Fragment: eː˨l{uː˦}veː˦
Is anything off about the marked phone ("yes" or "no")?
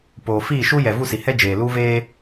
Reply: no